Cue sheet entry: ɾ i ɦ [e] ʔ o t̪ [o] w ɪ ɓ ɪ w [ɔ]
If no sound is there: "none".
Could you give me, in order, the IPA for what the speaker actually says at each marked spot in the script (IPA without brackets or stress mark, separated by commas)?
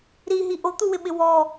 i, u, ɔ